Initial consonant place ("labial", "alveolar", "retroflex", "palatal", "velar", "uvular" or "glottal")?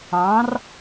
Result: alveolar